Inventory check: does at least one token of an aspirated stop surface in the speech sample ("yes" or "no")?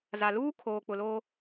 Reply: yes